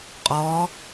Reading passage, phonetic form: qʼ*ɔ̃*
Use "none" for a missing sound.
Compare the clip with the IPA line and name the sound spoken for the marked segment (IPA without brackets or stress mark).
ɔ